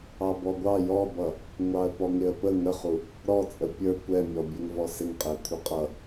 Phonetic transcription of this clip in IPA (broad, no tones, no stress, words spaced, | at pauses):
ɑbɔɡʷɑ jɔbʌ | ŋʷɑə̯pɔŋɪə̯pə ŋəχu | ɾɔt͡sʼə pʲə˞kʷ ɛmʲɔ bʲɛŋvɔsɪŋqʼɪə̯ kʷʰəqʼʌ